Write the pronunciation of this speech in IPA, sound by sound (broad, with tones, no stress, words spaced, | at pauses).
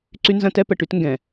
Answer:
ǀy˦nzɐ̃˦tɛ˦ pə˨ʈy˦tŋɡɛ̃˨